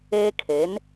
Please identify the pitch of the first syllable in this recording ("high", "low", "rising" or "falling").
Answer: high